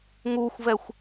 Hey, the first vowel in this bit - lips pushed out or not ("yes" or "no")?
yes